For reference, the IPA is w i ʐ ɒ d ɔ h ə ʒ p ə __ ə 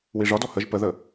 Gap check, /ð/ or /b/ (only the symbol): ð